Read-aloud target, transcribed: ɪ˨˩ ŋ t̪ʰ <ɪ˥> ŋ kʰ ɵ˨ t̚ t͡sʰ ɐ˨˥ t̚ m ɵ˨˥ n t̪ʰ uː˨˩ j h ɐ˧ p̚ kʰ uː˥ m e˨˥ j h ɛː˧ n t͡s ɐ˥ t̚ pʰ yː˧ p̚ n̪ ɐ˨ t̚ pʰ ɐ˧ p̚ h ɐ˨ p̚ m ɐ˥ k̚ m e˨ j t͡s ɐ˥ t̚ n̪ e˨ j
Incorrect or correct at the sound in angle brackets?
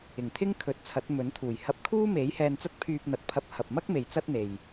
correct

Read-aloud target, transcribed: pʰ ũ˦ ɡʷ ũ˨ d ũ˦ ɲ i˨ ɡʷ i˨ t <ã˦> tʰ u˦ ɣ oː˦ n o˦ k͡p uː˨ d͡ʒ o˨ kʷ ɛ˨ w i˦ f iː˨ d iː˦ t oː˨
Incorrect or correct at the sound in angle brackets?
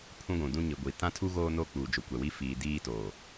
correct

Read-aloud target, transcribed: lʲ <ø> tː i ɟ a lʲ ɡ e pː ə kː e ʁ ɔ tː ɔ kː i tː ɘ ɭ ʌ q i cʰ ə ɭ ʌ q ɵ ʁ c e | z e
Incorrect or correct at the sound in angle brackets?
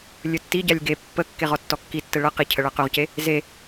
incorrect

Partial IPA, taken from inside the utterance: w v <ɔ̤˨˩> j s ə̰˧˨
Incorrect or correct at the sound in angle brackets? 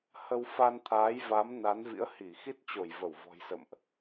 correct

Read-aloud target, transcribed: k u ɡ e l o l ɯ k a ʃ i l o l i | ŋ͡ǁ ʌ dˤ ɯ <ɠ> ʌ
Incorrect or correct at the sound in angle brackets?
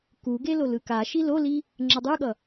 correct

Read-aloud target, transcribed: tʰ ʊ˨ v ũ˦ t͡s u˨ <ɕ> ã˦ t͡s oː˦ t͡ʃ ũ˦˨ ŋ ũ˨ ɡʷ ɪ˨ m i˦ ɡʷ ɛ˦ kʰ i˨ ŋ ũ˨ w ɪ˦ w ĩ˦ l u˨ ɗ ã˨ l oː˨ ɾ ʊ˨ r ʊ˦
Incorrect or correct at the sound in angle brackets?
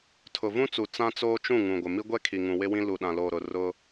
incorrect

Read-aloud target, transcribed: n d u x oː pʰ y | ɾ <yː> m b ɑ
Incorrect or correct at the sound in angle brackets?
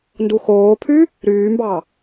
correct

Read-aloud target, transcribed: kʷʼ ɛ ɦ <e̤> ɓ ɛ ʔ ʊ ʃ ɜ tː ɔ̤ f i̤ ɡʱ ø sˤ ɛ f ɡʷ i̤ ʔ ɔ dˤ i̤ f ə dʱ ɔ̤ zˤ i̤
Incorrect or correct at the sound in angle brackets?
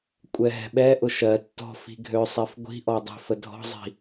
incorrect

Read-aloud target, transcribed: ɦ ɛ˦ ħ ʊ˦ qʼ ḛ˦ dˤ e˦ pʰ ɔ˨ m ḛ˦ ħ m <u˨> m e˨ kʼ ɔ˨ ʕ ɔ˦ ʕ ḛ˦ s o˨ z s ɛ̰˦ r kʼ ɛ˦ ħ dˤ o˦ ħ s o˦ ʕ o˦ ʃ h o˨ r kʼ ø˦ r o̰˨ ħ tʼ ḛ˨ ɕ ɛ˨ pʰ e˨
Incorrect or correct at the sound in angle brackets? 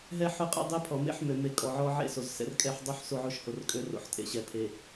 incorrect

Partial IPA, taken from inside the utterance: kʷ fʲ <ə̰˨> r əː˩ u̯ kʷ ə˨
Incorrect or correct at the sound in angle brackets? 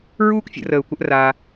correct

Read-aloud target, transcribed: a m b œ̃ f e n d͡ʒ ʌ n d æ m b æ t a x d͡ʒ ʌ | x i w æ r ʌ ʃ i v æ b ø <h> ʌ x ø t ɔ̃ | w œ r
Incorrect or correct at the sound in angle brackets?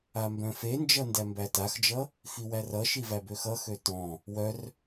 incorrect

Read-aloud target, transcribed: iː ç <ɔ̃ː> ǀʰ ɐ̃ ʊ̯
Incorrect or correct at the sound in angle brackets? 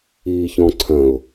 incorrect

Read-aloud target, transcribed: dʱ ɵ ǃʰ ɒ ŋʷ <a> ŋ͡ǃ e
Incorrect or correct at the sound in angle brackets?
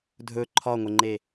incorrect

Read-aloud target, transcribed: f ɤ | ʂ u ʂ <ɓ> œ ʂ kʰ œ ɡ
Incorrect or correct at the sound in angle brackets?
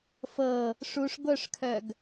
incorrect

